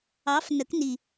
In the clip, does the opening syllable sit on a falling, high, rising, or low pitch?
rising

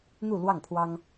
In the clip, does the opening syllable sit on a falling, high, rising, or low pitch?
falling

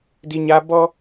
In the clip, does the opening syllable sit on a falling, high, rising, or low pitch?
high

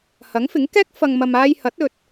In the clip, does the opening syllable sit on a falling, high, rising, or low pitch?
rising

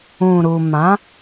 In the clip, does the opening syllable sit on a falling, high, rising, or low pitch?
low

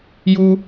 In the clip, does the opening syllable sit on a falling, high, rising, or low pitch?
high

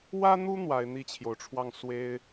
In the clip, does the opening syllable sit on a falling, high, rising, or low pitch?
high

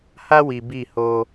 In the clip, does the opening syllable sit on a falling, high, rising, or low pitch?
high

